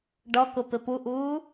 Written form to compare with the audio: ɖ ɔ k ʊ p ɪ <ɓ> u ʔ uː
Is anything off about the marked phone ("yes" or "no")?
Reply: yes